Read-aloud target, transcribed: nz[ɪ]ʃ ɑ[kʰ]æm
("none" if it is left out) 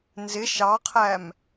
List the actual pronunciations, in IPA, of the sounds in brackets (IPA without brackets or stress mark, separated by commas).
ɪ, qʰ